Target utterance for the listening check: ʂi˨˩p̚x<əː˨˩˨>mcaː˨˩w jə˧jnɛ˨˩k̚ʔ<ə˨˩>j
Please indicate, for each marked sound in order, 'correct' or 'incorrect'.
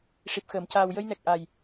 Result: correct, incorrect

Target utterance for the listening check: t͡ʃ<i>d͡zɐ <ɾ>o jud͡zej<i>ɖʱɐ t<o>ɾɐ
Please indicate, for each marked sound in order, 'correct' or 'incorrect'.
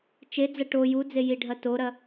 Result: incorrect, incorrect, correct, correct

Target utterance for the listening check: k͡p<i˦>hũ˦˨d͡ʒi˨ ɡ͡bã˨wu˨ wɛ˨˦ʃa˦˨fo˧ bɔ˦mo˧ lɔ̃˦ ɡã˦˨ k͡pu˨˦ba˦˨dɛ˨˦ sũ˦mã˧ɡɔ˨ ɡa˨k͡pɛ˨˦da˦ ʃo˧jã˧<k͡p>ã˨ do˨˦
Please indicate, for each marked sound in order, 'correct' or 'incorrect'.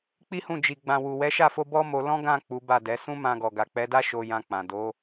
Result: correct, correct

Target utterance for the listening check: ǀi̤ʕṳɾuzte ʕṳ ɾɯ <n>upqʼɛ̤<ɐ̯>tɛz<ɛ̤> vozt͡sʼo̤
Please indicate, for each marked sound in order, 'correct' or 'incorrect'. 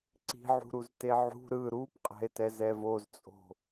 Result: incorrect, incorrect, incorrect

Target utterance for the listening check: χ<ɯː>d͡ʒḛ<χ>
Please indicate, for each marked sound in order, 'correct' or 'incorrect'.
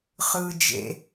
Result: correct, incorrect

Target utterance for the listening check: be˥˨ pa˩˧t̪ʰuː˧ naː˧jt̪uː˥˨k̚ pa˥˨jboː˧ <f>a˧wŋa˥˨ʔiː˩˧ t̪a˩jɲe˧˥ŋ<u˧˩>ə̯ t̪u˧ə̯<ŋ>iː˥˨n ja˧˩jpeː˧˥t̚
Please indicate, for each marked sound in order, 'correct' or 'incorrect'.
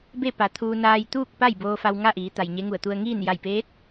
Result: correct, correct, correct

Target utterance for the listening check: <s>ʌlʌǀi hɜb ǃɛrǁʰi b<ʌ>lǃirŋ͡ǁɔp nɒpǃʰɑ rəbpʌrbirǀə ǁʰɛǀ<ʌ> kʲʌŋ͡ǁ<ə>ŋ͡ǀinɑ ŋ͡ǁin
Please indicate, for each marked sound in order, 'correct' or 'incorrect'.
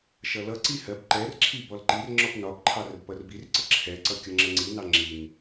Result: incorrect, incorrect, correct, correct

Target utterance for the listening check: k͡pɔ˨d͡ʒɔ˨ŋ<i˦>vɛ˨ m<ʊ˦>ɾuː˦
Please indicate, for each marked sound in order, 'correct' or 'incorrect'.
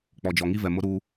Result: correct, correct

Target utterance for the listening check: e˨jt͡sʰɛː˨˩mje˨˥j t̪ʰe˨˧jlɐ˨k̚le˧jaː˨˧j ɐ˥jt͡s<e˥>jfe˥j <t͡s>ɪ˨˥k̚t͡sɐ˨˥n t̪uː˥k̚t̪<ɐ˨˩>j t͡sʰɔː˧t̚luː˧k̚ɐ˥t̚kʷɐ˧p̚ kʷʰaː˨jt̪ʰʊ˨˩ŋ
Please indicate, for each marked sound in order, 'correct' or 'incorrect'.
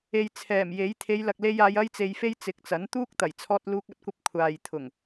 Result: incorrect, correct, correct

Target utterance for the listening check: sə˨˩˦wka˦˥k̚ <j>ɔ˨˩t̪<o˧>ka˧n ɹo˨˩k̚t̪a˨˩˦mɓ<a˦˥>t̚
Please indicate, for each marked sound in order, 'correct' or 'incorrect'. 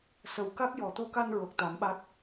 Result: correct, correct, correct

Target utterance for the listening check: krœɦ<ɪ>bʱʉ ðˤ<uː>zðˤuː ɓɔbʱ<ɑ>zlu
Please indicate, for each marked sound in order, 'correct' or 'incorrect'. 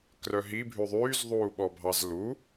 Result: incorrect, incorrect, correct

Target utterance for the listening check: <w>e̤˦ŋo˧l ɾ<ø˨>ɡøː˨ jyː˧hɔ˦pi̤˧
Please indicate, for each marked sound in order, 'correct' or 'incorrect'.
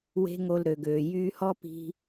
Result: correct, correct

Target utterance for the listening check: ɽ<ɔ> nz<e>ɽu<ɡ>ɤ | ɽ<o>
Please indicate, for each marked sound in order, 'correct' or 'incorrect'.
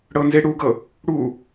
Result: incorrect, correct, correct, incorrect

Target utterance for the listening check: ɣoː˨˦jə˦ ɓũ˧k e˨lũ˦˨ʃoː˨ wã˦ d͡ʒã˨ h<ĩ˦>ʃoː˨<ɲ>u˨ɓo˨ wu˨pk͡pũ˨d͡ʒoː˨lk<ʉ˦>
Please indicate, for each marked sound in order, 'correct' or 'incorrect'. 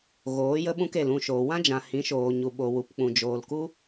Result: incorrect, correct, incorrect

